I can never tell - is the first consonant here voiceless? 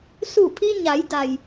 yes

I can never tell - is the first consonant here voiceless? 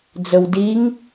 no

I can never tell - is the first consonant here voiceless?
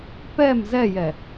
yes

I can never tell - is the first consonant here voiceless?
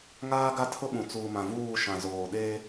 no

